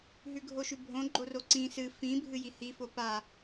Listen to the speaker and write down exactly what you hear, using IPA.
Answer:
ɦ ʉ ɡʱ o ʃ ʉ bʱ õ ɡ͡ǃ o r o ǀ ĩ s ɨ f ĩ bʱ ɨ j i h i f o p a

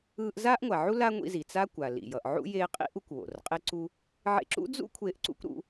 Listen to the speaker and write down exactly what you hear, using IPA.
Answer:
ɯː˧ ʔ z aː˥ ʔ ŋʷ a˩ ʕ u˥ l a˥ ŋʷ ḭ˧ z i˩ t͡s a˥ kʷ a˩ l ḭ˩ j ʌ˩ ʔ ʕ ṵ˥ j eː˧ qʼ ḭ˥ ʔ u˧ kʷ w o̰˩ r qʼ e˧ ǀ u˧ | ʕ ḛ˧ ǁ ṵ˥ d͡z ṵ˥ kʷʰ eː˧ ʔ ǀ ṵ˥ kʷ ɾ ṵ˧

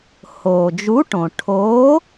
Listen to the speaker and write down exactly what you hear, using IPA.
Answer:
h oː˩ d͡ʒ u˨˥ ʈ õ˩ ʈʰ oː˨˥

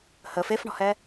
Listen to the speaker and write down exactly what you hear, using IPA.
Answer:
h ə f e f ɳ ɔ̤ h ɛ

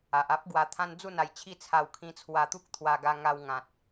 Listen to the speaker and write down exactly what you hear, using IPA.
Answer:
a˨ ʔ a˦ p̚ ɡ w a˧ t̪ʰ ã˦ n d͡z u˥˧ n a˧ j t͡ɕʰ i˥˧ t͡sʰ a˧ w kʰ ĩ˧ t͡sʰ w a˧ t̪ u˦ k̚ t̪ʰ w a˧ ɡ a˧ ŋ a˧ w ŋ ã˨ t̚

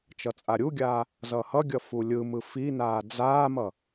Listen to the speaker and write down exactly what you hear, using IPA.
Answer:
t͡ʃ ʌ t͡sʼ a ɾʲ u ɡʲ aː | z ʌː h ʌ ɡʲ ʌ f u lʲ ɯ m ɯ f i n aː d͡z aː m ʌ

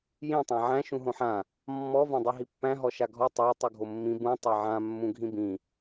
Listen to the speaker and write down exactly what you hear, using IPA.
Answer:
j ĩ tˤ æ̃ ʕ æ̃ ʃ ũ ɦ õ ħ ã | mː ɔ v ã dˤ i ɦ i pː æ̃ ɦ ɔ ʃ a ɡʱ ɔ tˤ a tˤ u ɡʱ o mː ĩ b ũ tˤ a ʕ ã mː ũ ɡʱ ĩ b ĩ

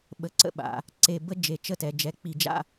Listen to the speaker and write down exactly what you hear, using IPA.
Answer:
ɓ ə˩˥ ǀ ə̰˥ ɓ a̰˩˧ | ǀ e˧˩ b ə˥ d͡ʒ e˧˩ t͡ʃ ə˥˧ t ɛ˩˧ d͡ʒ ɛ˩˥ k͡p i˧˩ d͡ʒ a̰˥˧

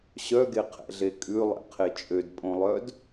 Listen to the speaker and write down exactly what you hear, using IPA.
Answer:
ɕ œ ɡ e qʰ ɛ̰ ɮ e kʼ ʉ lˠ ɛ̰ qʰ e t͡ʃʼ ø d pʼ õ lˠ œ d

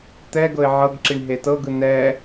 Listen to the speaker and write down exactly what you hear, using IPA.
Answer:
t̪ ɛ ɡ ɤ ɪ̯ ʕ ɤ ɡ ǁ i ɳ ɦ e t ɤ ɡ ɯ n ɛ

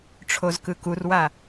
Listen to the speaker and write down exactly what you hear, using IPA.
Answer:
ʈ͡ʂʰ o z k ɯ k u r w a

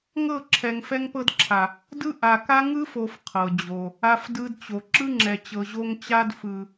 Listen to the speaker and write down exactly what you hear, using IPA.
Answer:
ŋ ɤ˦˨ ǁʰ ɛ˨ ŋ f ɛ˦ ŋ p ɤ˦ d ǁʰ a˨ | d ɯ˦ ʔ a˨ k a˦ ŋ ɯ˦ f o˨ f qʰ ɤ˨ d͡ʑ o˨ | a˦ f d ɯ˦ d t͡ɕ o˨ ǁ ɯ˦ ŋ͡ǁ ɛ˨ t͡ɕ ɤ˨ ʑ o˦ ŋ t͡ɕ a˦ d f ɯ˨

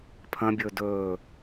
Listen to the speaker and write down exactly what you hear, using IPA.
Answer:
pʰ ɐ̃ bʲ ɵː d ɵː

